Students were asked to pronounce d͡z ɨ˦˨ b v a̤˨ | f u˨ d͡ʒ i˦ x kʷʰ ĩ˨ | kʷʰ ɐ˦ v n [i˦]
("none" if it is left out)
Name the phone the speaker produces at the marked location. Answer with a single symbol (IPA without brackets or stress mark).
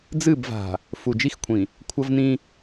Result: ĩ˦